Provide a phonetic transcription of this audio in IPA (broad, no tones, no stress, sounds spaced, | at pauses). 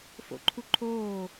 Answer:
f o̰ ǃʰ u ǃʰ oː